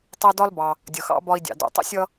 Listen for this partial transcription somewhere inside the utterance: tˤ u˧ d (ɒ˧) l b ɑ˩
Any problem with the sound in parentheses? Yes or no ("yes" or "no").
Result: yes